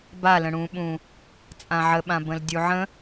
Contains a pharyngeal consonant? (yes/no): yes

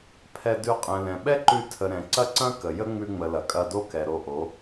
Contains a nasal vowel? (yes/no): yes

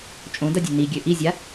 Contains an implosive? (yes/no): no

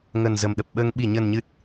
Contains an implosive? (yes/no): yes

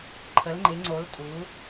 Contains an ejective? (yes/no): yes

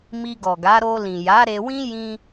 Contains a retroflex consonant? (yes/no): no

